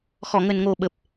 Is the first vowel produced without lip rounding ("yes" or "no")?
no